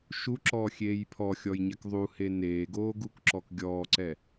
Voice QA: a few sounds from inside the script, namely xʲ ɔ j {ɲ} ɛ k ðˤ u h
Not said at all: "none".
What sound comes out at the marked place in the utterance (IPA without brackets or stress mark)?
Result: ɲ